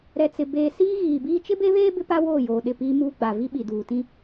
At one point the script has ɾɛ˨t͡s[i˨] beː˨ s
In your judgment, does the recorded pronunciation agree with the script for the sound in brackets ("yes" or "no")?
no